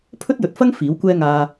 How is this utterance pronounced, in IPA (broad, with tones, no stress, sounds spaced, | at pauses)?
pʰ ɵ˥ t̚ j ɵ˨ t̚ f ɐ˥ ŋ f iː˨˥ w kʷ ɛː˥ ŋ aː˧